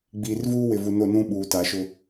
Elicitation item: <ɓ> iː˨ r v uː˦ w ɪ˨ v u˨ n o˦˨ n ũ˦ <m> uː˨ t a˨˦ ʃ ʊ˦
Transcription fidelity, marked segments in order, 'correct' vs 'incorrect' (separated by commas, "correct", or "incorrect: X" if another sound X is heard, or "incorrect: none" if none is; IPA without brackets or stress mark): incorrect: ɡ͡b, incorrect: ɓ